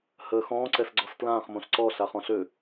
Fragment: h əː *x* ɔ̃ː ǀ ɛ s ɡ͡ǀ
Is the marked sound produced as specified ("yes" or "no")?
yes